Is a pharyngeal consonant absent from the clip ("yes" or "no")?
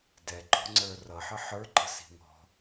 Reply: no